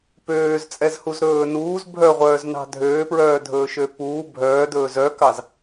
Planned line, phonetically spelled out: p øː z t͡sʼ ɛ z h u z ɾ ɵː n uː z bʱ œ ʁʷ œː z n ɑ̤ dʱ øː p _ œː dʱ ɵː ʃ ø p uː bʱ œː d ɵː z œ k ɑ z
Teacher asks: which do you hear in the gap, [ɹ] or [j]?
ɹ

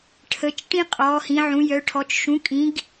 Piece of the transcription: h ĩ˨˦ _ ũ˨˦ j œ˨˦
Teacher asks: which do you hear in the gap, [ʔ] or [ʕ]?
ʕ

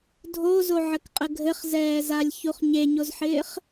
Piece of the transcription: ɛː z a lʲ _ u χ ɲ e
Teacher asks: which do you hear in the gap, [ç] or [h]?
ç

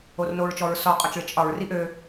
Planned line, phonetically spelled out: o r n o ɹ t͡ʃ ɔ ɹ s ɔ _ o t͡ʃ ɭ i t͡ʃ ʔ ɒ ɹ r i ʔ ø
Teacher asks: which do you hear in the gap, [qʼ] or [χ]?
qʼ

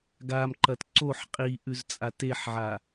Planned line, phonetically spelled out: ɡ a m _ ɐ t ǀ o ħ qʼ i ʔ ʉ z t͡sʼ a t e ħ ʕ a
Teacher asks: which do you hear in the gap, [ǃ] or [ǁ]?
ǃ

